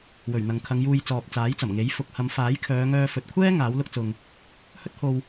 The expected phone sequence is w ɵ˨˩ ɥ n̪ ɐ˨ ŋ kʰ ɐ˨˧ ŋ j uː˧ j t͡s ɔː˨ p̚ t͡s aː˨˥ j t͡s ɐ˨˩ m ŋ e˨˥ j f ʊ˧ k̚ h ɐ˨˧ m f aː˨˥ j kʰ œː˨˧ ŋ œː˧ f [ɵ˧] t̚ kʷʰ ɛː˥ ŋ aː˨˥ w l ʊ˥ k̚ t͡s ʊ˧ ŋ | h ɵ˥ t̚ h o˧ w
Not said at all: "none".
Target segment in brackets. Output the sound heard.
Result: ɵ˨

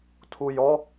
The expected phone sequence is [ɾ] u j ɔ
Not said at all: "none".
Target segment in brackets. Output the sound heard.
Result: tʰ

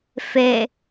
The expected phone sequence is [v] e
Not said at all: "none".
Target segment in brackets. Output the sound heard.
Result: f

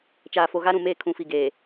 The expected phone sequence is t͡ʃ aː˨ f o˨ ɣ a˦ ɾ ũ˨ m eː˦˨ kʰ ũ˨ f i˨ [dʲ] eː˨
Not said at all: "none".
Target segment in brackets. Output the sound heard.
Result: ɡ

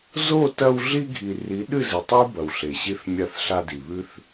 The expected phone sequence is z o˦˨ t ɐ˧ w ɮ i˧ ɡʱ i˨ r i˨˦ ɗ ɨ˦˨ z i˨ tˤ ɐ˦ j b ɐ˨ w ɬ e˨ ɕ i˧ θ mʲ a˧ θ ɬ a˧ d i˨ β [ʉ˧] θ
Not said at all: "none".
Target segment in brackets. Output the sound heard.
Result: ʉ˧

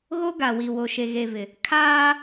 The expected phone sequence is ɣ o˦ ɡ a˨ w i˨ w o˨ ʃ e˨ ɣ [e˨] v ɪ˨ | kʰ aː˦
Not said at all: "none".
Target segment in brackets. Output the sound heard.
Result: e˨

